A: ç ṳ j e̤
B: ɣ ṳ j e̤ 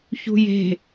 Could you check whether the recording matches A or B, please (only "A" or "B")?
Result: A